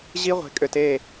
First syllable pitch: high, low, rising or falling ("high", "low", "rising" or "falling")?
high